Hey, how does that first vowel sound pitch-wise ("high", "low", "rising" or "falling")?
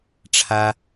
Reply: high